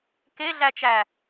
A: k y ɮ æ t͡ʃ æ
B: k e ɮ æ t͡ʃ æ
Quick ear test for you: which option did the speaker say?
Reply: B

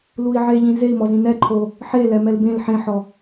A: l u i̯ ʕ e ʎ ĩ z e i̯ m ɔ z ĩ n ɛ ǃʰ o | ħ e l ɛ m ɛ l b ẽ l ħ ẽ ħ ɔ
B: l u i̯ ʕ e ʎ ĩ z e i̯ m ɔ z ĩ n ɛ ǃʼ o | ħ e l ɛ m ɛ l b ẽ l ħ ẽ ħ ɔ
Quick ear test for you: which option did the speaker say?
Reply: A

